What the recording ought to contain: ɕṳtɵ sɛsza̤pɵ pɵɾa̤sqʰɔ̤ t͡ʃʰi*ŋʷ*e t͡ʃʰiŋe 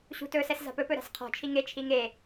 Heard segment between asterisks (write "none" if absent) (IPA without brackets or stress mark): ŋ